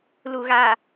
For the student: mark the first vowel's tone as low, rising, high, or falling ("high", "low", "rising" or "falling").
low